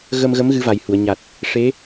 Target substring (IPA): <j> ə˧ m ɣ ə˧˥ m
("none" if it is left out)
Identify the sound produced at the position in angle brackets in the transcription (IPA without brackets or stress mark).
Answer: ɣ